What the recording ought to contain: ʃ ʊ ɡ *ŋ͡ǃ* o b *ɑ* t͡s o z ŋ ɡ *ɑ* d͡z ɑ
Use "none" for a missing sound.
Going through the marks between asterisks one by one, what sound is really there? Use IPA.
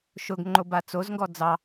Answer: ŋ͡ǃ, a, ɔ

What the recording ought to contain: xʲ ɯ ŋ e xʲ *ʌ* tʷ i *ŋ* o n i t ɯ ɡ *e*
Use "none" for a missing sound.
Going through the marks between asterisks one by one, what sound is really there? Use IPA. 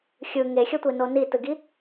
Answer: ʌ, n, i

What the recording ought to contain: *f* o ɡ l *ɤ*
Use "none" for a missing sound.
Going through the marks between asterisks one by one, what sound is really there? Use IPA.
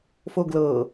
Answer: f, ɤ

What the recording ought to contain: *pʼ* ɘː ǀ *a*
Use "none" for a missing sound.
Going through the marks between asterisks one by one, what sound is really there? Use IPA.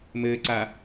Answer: m, a

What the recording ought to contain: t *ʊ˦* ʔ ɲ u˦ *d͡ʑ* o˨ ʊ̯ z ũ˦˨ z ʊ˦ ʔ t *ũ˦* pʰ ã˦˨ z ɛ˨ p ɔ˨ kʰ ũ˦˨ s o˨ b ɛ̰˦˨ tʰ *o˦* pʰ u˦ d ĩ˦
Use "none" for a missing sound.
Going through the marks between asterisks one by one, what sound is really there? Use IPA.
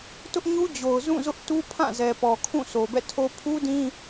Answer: ʊ˦, d͡ʑ, u˦, o˦

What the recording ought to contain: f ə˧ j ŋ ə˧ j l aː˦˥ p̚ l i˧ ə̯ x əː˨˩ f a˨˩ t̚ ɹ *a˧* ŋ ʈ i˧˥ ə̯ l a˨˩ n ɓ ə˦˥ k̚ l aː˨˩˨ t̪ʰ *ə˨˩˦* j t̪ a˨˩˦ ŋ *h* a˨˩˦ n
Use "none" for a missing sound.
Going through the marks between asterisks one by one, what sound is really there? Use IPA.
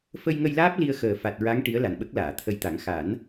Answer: a˧˥, ə˧, x

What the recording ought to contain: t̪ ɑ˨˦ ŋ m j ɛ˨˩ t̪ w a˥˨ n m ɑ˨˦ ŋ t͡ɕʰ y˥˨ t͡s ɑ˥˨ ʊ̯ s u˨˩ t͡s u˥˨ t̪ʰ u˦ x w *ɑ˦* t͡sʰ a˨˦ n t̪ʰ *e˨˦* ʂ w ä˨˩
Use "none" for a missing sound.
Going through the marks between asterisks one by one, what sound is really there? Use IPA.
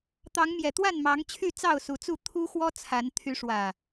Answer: ɔ˦, y˨˦

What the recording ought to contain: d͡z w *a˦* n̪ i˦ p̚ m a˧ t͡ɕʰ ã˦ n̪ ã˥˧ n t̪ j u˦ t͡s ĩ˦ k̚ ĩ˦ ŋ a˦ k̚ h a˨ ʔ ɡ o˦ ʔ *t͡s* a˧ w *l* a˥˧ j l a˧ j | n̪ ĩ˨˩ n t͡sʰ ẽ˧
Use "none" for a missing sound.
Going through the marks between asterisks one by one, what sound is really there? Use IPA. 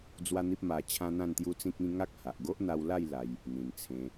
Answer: a˦, n̪, l

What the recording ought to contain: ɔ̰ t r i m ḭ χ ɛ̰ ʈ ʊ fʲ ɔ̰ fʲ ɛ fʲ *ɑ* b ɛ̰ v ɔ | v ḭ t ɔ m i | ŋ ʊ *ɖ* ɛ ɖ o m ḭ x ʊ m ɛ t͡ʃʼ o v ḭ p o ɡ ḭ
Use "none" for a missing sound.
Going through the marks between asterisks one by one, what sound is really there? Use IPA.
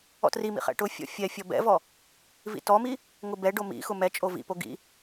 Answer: ɔ, b

